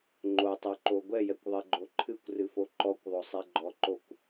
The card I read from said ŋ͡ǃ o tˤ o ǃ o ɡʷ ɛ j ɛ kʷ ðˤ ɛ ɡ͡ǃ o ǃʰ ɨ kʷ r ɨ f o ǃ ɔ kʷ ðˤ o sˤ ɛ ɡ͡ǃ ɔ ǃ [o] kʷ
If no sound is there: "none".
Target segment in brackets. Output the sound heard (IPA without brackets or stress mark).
o